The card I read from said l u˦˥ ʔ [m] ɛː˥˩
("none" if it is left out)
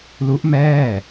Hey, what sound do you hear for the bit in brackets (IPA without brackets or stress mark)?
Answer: m